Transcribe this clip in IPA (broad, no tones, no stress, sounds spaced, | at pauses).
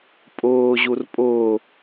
pʼ ʊː ʑ u r pʼ ʊː